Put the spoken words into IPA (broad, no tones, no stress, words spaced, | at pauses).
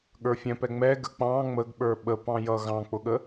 ɠə˞fʲɛ̃pɛ ŋ͡mɛ ɡə k͡pɑ̃ ŋ͡məɡɓə˞ ɓəpɑ̃ jʌ ɣɑ̃k͡pʊɠə